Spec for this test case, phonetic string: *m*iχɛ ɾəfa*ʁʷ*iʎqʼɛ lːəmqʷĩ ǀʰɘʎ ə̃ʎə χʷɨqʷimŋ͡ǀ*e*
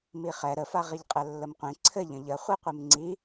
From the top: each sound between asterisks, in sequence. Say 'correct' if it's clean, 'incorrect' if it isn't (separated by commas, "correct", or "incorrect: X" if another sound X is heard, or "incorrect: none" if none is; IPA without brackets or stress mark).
correct, incorrect: ʁ, incorrect: i